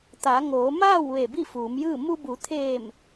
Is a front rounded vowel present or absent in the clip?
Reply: absent